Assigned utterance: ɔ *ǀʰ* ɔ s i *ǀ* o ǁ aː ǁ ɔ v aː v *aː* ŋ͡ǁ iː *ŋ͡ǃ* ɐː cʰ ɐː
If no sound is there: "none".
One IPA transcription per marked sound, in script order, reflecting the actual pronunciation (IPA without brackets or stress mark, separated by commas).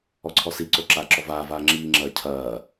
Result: ǀʰ, ǀ, aː, ŋ͡ǁ